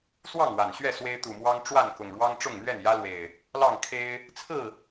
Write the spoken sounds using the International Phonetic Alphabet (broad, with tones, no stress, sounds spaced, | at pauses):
s w ɑ˥˨ ŋ w a˨˩ n ɕ ɥ ɛ˥˨ s w e˦ ɪ̯ t̪ u˨˩ m w ɑ˦ ŋ ʈ͡ʂ w a˥˨ n k ʊ˨˩ ŋ ɻ w ɑ˦ ŋ ʈ͡ʂ ʊ˥˨ ŋ n̪ ɥ ɛ˥˨ n j ä˦ l w e˨˩ ɪ̯ | l ɑ˥˨ ŋ kʰ e˦ ɪ̯ | t͡sʰ ɹ̩˥˨